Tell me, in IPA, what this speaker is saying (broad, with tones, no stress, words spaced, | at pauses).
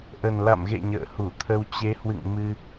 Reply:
ʔə˨˩nla̰˧˨mɣḛ˧˨ ɲə̰ː˧˨hu˧˩t̪ʰə˧w t͡ɕe˨˦hwɨ̰˧˨ŋ mɨ˧